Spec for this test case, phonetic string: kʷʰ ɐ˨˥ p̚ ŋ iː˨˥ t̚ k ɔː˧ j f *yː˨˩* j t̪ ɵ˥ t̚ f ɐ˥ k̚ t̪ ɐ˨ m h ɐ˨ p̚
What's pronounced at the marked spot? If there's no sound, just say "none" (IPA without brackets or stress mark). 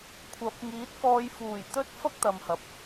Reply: uː˨˩